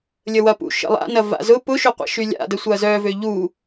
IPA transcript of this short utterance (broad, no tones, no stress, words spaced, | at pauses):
lʲəwɐpṵ ʃə̰lˠa̰nɐ va̰zʊ pʊʃʏqʷɛ̰ ʃylʲa̰də sʷɐzœvø ʎu